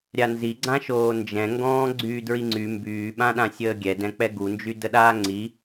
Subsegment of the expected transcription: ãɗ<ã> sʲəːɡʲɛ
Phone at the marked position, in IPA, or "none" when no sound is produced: ã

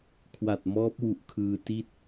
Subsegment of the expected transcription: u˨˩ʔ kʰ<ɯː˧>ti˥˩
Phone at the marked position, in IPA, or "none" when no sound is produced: ɯː˧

